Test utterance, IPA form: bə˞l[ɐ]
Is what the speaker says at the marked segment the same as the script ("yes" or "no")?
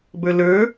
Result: no